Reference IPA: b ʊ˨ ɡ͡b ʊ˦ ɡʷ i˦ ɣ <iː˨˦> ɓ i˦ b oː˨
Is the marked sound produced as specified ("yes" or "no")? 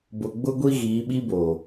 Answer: yes